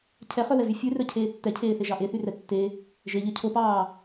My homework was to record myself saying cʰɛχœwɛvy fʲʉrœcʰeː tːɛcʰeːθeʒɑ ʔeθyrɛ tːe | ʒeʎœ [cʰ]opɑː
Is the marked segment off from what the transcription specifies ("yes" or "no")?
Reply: no